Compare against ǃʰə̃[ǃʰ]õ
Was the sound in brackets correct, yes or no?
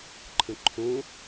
yes